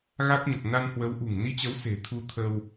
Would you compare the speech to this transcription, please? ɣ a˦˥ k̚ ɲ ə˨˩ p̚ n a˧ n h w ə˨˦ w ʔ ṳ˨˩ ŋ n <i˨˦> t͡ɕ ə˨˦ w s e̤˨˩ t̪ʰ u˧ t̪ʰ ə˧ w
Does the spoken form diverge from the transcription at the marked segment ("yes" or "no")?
yes